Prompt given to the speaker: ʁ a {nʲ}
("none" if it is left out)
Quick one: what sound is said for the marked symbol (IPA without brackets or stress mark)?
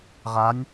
nʲ